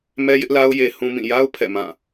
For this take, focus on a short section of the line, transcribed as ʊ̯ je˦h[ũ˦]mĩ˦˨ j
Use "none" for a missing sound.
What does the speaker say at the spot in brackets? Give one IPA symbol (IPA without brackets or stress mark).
ũ˦